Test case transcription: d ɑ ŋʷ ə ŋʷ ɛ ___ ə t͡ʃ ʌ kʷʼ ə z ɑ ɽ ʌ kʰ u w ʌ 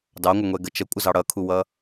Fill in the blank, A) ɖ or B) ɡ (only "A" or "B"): B